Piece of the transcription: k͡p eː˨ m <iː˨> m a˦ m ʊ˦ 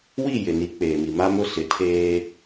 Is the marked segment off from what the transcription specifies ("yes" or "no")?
yes